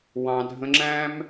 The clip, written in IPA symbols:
wɑ̃˨dʱə̃˧ŋ͡ǁæ̃˦m

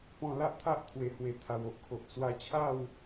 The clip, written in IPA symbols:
pɔ̃˧la˦ʔt̪ʰa˦ʔt̪ʰwe˨˩ hwe˨˩ t̪ʰa˨˩wo˦ʔkʰo˨ʔ t͡swa˧t͡ɕʰa˥˧w

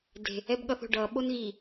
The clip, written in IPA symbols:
de̤ | ɛbɠʌθo̤ɖʌ ɓonɣi

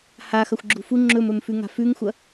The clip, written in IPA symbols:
haxɐxʷɡ͡ǁṳ fu ŋ͡ǁɵmɵmfʉŋa̤ fʉŋxʷɐ

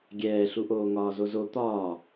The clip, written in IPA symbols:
ɡʲɛːɬuʔoː ŋɒːzozo t̪ɒː

